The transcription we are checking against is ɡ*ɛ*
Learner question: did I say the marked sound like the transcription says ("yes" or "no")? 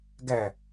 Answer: no